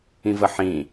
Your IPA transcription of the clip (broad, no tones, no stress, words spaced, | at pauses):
ĩvəħĩ